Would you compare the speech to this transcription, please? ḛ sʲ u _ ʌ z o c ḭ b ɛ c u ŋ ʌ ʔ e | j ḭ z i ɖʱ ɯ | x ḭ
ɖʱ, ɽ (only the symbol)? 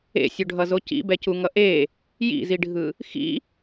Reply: ɖʱ